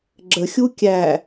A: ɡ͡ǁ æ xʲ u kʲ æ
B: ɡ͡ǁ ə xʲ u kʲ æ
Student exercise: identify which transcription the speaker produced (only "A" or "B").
B